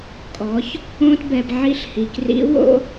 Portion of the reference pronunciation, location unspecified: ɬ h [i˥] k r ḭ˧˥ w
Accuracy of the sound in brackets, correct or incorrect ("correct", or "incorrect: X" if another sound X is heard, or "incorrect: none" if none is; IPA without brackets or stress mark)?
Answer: incorrect: i˩